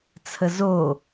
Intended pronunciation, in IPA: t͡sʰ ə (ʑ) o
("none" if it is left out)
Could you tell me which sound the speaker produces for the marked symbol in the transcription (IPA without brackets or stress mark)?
z